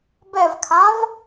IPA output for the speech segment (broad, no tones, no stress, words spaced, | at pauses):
bɛvkʰãv